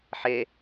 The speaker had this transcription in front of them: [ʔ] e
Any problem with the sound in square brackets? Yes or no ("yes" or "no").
yes